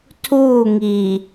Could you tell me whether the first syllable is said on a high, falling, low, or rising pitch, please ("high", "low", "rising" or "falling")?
falling